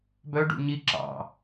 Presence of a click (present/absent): present